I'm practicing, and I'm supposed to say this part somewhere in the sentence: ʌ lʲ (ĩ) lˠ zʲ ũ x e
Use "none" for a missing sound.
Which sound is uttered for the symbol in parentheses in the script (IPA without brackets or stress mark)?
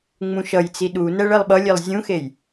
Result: i